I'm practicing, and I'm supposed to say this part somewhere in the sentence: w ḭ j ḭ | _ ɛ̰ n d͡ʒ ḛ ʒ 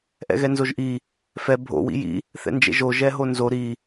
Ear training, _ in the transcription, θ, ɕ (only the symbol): θ